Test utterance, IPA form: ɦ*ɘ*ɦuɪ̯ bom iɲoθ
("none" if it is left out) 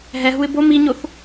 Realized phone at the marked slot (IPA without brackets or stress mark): ɛ